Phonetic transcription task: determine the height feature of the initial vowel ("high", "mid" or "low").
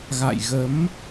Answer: low